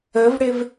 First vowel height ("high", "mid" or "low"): mid